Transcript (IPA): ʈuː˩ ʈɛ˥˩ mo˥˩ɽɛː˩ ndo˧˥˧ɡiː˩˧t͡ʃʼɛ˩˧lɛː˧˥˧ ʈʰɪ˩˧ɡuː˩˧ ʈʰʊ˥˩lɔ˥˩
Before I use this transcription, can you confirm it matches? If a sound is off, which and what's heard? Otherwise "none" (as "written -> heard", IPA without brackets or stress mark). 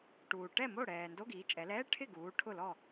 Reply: ɪ˩˧ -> ɪ˥˩